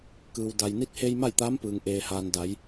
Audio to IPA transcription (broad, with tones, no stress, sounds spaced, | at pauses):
k ɯː˩ w d a˩ j n i˧˥ t̚ h e˧ j m a˥˨ j t̪ aː˧˥ m p ɯː˩ ŋ ʔ eː˩ h aː˩ n d a˩˧ j